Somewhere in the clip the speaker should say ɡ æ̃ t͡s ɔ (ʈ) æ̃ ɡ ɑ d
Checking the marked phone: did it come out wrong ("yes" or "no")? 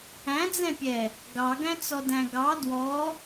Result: yes